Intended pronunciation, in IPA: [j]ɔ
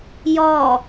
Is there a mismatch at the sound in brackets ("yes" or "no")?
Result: no